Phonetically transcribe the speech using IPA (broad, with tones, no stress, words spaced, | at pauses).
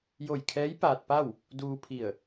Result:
jo˧˩jkʰɛː˧˥j paː˧t̚pa˥˨w | duː˧pʰi˧˩ə̯